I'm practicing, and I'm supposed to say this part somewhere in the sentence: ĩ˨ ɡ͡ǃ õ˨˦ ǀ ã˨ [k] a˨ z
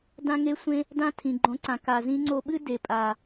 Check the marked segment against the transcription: correct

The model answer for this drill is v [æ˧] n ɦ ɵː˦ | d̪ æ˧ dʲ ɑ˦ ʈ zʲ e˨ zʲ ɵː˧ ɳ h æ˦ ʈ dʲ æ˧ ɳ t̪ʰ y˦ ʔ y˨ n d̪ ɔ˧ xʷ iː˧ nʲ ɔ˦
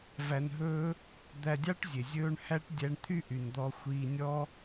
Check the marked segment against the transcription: correct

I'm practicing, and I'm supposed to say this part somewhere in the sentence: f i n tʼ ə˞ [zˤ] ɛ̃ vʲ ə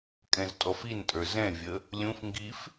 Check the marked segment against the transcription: incorrect: z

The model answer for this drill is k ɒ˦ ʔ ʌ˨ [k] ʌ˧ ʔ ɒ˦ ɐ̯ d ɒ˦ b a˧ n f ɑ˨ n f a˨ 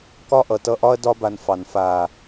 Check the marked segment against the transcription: incorrect: t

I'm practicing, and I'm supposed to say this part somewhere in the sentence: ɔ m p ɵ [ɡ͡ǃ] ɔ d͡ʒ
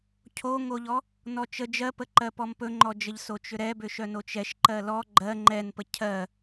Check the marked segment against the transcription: incorrect: ŋ͡ǃ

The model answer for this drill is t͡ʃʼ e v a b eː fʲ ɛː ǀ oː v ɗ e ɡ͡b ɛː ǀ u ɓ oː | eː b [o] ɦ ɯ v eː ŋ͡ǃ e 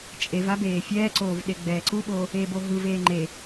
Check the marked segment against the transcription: correct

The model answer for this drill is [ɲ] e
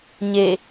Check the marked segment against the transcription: correct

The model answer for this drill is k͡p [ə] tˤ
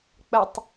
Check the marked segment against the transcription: correct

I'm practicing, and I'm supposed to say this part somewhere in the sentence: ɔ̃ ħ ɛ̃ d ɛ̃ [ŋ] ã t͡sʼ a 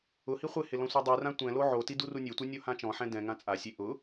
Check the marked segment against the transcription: correct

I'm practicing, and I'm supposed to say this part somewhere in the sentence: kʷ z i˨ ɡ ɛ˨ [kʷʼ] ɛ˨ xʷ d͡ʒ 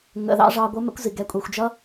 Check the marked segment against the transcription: correct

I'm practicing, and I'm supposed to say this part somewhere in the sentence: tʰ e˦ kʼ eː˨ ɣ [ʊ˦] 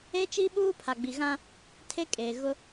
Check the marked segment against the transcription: correct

